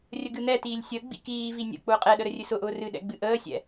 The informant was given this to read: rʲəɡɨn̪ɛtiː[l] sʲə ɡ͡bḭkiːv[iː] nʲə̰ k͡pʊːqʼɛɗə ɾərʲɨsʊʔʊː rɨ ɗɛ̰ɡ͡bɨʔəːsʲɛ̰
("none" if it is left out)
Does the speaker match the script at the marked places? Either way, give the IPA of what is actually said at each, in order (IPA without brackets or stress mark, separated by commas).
lʲ, i